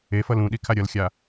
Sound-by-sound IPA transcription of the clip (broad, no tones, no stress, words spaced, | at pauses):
efʌl ũɗi kʰaɾʲʌlxʲa